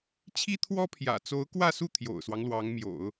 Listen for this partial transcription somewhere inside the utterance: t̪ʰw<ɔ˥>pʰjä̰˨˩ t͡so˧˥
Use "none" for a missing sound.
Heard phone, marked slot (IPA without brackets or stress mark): ɔ˥